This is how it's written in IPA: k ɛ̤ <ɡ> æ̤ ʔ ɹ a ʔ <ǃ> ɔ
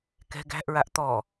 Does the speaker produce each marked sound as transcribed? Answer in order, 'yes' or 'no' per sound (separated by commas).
yes, no